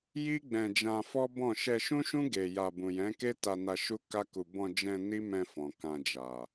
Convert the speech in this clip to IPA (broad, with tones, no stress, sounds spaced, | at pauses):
j i˦ ɡ͡b ɛ̃˧ d͡ʒ ã˧ f ɔ˦ b ɔ̃˦˨ ʃ ɛ˧ ʃ ũ˦ ʃ ũ˦ ɡ e˧ j a˧ b ũ˨ j ɛ̃˨˦ k e˦ t a˧ n a˧ ʃ u˦ k a˦ k u˧ b ɔ̃˧ d͡ʒ ɛ̃˧ n i˦ m ɛ̃˧ f ɔ̃˨ k ã˧ d͡ʒ a˨